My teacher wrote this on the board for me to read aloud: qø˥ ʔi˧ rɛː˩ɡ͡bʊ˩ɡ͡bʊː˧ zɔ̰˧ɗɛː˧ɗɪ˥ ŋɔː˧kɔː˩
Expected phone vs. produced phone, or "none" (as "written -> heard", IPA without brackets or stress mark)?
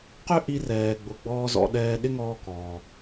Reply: ʊː˧ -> ɔː˧